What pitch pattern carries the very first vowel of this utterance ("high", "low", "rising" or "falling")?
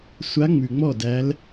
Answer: rising